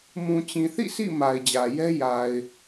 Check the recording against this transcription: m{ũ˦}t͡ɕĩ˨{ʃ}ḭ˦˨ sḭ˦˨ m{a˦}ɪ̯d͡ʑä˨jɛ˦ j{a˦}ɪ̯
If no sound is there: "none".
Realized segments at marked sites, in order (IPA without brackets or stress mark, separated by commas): ũ˨, θ, a˨, a˨